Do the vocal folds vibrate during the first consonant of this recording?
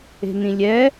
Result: yes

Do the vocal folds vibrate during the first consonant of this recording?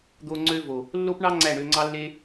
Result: yes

